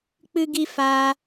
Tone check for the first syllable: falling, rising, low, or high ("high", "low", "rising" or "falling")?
high